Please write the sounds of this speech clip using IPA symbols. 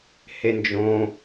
h e n d͡ʒ õ

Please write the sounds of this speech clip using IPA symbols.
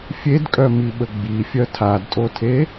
fʲ e d kʼ œ m i ɓ ə ɡ͡b i fʲ œ tʰ a d tʼ o tʰ e

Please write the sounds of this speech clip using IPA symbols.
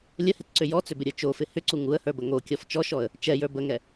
lʲ ə h ɪ t ǀ ʏ j ɔ t͡s ʏ b ɪ ɾʲ ə˞ t͡ʃ o f ɪ h ʏ ǀ u ŋ u ə̯ h ə˞ b ə ŋ o kʲ ɔ f t͡ʃ ɔ ʃ ɔ ə̯ | t͡ʃ ɛ j ə˞ b ə ŋ ɛ

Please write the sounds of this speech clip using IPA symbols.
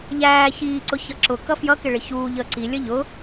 ʎ æː ç iː ǀ ʊ ç ʌ ǁ ʊ k ʌ f j ʌ k ɪ ɭ ɪ ç uː ʎ əː ǀ i lʲ ʌ ʎ ʊ

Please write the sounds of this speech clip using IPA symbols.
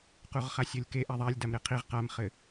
q u ʁ χ a sʲ ɤ lʲ k e ʔ a ðˤ a lʲ d a m ɾ e qʰ i ʁ q a m χ ɘ

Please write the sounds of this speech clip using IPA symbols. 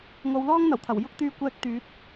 ŋ o˨˧ w l ɔː˥ ŋ n̪ ɐ˨˩ w t̪ʰ ɐ˨˩ w j ʊ˥ k̚ t̪ yː˧ kʷ ɛː˧ k̚ t̪ yː˨˥ t̚

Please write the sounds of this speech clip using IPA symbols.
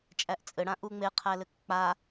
t͡ʃʼ æ ʔ t͡sʼ ɘ ɽ ã ʔ u ŋ͡m e qʰ æ l ɘ k k͡p a

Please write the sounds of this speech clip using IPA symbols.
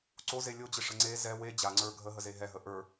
ǀ o z e lʲ o d͡ʑ ɪ ʂ ə ŋ͡ǀ e z ɛ w e d͡ʑ a ŋ͡ǀ ə˞ ɡʱ ə ɦ ə z e ɦ ɛ ɦ ə ʔ ə˞

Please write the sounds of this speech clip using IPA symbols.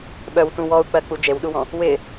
ɓ œ w θ ũ w ɔ u̯ k͡p ɜ k͡p u d͡ʒ e w ɗ u w ɔ̃ | w ɪ

